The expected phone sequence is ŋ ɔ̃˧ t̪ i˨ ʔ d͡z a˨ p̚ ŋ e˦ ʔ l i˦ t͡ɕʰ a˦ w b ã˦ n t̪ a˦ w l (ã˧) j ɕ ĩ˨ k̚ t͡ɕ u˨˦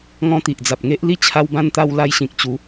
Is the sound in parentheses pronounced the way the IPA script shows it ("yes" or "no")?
no